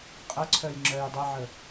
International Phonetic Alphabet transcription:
qʼ ə ǀʰ œ j ŋ͡ǁ œ j dˤ e ʕ ə

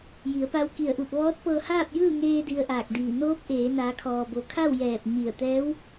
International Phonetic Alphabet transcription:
j i˩˧ ə̯ p a˧ w k i˧˩ ə̯ ʔ u˧˩ p̚ ʋ ɔː˧˥ t̚ p ɤː˧ h aː˥˨ p̚ j ɯː˥˨ ŋ eː˧ d i˧ ə̯ ʔ aː˧˩ k̚ d iː˧˩ n oː˧˥ p̚ ʔ eː˩˧ n aː˩˧ kʰ ɔː˩ b o˩ kʰ a˥˨ w j ɛː˧˩ p̚ ɲ i˧˩ ə̯ t̪ ɛː˧˥ w

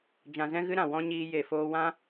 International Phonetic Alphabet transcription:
d͡ʒ ã˧ z ɛ̃˦ ɣ ɨ˦ ɾ ã˨ w ɔ̃˧ ɲ iː˧ j e˨ f oː˧ w ã˦

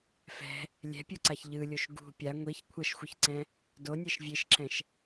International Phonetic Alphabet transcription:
f ɛ̤ | lʲ ɛ̤ pʲ u ǀ a ç ʎ ɯ lʲ o ʃ ɡ ṳ pʲ a ŋʷ i ç kʷʰ ʌ ʃ xʷ ɯ ç ǀ ɛ̃ | d o nʲ ɛ ʃ vʲ e ʃ ǁ ɛ̃ ʃ

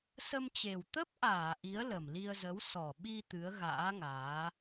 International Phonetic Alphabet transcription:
s ə˧ m t͡ɕ e˨˩ w t̪ ə˦˥ p̚ ʔ aː˧˩ ʔ i˨˦ ə̯ l ə˨˩ m l i˧ ə̯ z ə˨˦ w s ɔ˨˩ ɓ i˧ t̪ ɨ˨˦ ə̯ ɣ a̰ː˧˥ ŋ aː˨˦

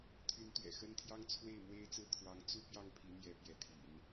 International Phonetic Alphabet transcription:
t̪ʰ y˧˥ n t̪ ɥ ɛ̰˨˩ x ə˥ n t̪ʰ j ɑ˥ ŋ t͡sʰ w e˥˩ ɪ̯ m w e˥ ɪ̯ t͡s ɹ̩˥˩ t̪ʰ w ɑ˧˥ ŋ t͡s u˥ p j ɑ˥˩ ŋ pʰ i˧˥ n̪ j ɛ˧˥ p j ɛ˧˥ t̪ʰ ḭ˨˩˦ n

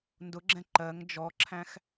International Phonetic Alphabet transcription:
n d ʊ ɡ͡ǁ ɛ̃ ǃ ɜ ŋ d͡ʒ ɔ ǁʰ æ̃ x

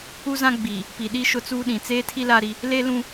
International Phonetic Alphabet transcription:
u˦ z ã˦ ɡ͡b iː˨ | p i˨ ɗ i˦ ʃ ʊ˦ t͡s uː˦ ɗ ĩ˨ t͡s eː˦ tʰ i˦ l a˦ ɾ i˦ | l e˦ l ũ˦

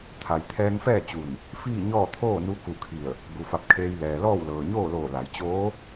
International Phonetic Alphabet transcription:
t̪ʰ a˩˧ j t̪ʰ ɛː˧ ŋ f ɛː˥˨ t͡ɕ u˧˩ n | f iː˥˨ ɲ ɔː˥˨ t̪ʰ oː˥˨ n u˧˥ k u˧˩ kʰ i˧˩ ə̯ | b u˩˧ f a˧˩ p̚ kʰ eː˧ j l ɛː˩ l ɔː˥˨ w l ɤː˩ ɲ oː˥˨ l oː˧˩ l a˩˧ j t͡ɕ oː˧˥

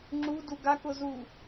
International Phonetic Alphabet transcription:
ŋ͡ǁ u d u ɡ a k ʊ z u

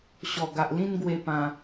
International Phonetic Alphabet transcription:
ɕ ɔ˨˩ ɡ a˨ ʔ l ĩ˥˧ n ɡ w e˥˧ p ã˧

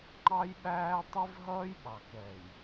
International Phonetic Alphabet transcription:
ŋ͡ǃ ɑ˦ j ɓ æː˦ tˤ i˦ v ɦ ʌː˦ j ɓ ɑ˨ k ɛ˨ j

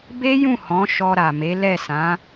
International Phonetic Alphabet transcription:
b e˦ j ũ˦˨ h ɔ̃˨˦ ʃ ɔ˧ ɾ a˨ m e˨˦ l ɛ˦˨ s ã˨˦

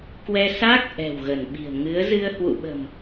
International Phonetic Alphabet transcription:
k w ɛ˧ s aː˦˥ k̚ ʔ ɛ̤˨˩ w ɣ ə˧˩ n ɓ i̤˨˩ ə̯ ŋ ɨ˨˦ ə̯ z ɨ˧ ə̯ h w ṵ˧˨ ɓ ə̤˨˩ m

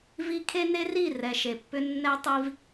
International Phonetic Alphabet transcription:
v i˧ kʰ e˦ n e˦ r i˦˨ r ɛ˨ ʃ e˨ pː ʏ˧ nː ɛ˧ tˤ i˧ v

